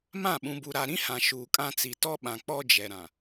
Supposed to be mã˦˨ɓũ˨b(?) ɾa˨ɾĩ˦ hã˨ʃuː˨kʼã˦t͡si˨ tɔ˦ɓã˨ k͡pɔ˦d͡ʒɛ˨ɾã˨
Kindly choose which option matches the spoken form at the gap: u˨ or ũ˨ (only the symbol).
u˨